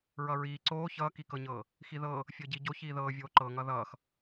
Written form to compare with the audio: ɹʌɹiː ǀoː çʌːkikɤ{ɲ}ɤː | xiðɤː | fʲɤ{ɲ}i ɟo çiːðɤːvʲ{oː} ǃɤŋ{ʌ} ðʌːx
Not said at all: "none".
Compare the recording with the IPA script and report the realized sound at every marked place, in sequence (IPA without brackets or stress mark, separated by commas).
ɲ, ɟ, oː, ʌ